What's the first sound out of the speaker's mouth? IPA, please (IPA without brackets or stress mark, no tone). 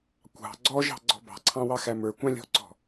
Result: kʷ